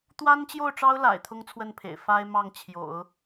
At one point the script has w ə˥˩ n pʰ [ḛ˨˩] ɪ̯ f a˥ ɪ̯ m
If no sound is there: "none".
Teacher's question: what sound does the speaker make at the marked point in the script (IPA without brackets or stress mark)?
ḛ˨˩